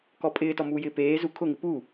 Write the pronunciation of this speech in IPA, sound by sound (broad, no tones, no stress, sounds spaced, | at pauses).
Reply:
k ɔ pʼ ɪː t ɔ m uː j ɪː p eː z u kʰ ʊ ŋ ɪ p u